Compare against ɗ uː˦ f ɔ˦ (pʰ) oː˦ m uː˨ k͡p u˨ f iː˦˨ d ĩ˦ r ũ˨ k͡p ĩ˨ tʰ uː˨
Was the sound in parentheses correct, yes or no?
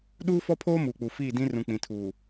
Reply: yes